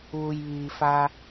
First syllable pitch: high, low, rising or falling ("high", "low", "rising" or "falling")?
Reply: low